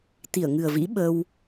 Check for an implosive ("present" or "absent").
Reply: present